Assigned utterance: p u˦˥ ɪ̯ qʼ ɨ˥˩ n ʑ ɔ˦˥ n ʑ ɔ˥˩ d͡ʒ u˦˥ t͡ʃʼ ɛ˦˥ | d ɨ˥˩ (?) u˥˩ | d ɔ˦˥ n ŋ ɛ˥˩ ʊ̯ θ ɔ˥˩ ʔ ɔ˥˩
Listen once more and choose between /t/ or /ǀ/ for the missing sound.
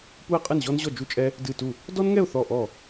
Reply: t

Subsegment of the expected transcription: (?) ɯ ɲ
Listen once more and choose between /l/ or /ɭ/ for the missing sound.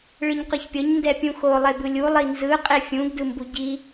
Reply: ɭ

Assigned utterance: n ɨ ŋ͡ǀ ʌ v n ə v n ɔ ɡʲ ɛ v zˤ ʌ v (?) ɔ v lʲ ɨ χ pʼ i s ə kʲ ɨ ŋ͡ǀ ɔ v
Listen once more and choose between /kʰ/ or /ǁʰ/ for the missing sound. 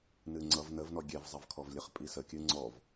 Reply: kʰ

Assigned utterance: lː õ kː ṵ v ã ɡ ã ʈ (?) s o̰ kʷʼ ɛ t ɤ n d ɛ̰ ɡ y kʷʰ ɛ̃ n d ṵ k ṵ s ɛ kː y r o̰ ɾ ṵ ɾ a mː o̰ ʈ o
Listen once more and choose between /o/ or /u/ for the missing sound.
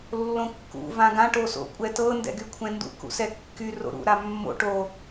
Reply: o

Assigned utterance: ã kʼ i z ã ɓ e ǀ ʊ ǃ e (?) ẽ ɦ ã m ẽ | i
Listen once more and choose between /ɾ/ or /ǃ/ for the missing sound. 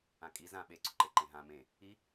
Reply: ǃ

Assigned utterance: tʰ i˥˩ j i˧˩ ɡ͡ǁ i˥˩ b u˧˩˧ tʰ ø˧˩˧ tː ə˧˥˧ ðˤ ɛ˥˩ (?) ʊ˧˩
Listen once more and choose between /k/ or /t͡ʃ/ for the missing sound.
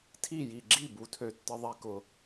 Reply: k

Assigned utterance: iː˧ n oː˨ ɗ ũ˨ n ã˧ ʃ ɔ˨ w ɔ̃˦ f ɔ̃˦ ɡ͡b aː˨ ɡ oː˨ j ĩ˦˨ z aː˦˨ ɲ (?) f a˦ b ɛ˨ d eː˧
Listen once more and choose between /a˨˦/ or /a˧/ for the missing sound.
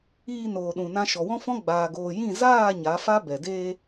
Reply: a˨˦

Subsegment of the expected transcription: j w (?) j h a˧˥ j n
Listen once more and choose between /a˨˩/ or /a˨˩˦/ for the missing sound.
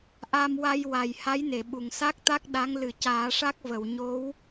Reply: a˨˩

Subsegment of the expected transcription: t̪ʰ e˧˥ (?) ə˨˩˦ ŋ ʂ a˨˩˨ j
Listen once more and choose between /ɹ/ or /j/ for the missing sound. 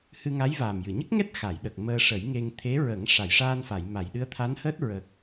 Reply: ɹ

